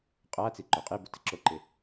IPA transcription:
qʼ a t͡s i ǃ o qʼ e b u t ɪ ǁ o ǃ ɪ

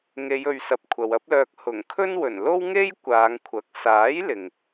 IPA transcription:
ŋ e˨˧ j ɵ˨ ɥ s ɐ˨ p̚ kʷʰ ɐ˨ w ɐ˥ p̚ l œː˧ k̚ h ʊ˨˩ ŋ kʰ ɵ˥ n w ɵ˨˩ n l o˥ w ŋ e˥ j kʷ aː˨˧ ŋ kʷʰ ɐ˨˥ k̚ s aː˨˥ j l ɪ˨ ŋ

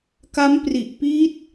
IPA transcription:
k a˦˥ m p r i˨˩ ʔ p iː˦˥ t̚

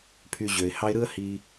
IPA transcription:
pʰ y˧ ʑ ø˨ ɪ̯ h ɑ˦ ɪ̯ ɾ ɯ˦ ə̯ h i˧

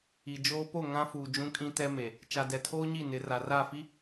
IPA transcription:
i˨ d͡ʒ oː˦ p o˦˨ ŋ ã˦ f uː˨ d͡ʒ ũ˦ kʼ ĩ˦ t ɛ˦ m e˨ | t͡ʃ a˨ d ɛ˨ tʰ oː˦ ɲ i˦˨ n ɪ˨˦ r a˨ r aː˦˨ f i˦

